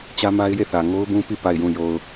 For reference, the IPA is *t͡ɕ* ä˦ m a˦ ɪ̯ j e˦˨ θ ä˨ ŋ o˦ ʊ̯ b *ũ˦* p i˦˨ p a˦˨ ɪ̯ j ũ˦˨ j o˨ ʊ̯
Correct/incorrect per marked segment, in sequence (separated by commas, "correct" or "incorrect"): correct, correct